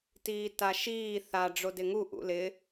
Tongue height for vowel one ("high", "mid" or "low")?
high